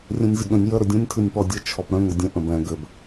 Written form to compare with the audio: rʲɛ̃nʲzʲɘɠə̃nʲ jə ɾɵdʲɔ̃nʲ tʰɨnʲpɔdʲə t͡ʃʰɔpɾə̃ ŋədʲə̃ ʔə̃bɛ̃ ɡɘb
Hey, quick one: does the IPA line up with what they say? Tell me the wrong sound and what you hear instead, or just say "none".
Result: none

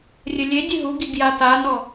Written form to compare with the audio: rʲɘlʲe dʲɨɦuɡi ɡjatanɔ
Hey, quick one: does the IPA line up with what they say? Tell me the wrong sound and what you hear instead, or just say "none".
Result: none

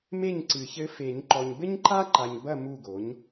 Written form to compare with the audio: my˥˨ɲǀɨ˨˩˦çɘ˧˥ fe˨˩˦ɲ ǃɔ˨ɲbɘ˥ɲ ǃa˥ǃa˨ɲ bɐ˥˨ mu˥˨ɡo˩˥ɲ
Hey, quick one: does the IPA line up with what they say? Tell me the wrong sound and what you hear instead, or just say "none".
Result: y˥˨ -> e˥˨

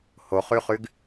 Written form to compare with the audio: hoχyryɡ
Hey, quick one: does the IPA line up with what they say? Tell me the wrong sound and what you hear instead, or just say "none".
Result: r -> χ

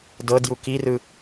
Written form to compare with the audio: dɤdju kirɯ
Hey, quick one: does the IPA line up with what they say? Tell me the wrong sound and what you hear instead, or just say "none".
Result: none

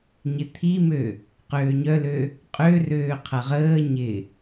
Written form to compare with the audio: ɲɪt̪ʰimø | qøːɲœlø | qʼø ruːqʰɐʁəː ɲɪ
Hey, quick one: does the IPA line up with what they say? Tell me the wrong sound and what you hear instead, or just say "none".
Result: uː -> øː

